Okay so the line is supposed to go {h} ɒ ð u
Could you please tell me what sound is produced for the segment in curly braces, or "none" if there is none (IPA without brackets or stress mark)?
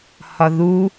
h